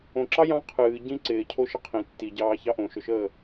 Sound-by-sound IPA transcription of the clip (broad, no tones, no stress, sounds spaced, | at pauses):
õ ǁ ɑ j ɑ̃ qʰ ɨː ɟ ĩ ǀ ɪː cʰ o ʃ ə qʰ ĩ tː i ɟ ɑː ç ɑ ʔ õ ʃ ɵ ʃ əː